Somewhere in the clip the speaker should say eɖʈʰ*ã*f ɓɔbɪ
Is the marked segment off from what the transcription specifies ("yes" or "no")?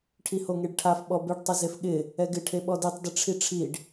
yes